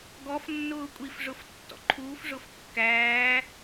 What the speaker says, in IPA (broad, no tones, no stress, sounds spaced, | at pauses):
ɡ ɔ f nː ʊː kʷʼ i f ʐ ʊ f tː ɔ̰ ǃʰ uː f ʐ ʊ f kː æː